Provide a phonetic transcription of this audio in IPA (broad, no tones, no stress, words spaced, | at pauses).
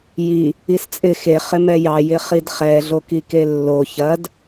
ji | ist͡sʼɪ xe χɪmɛjɑ jɪχidχɛ ɮokikelːo çɐd